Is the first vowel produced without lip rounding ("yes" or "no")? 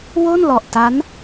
no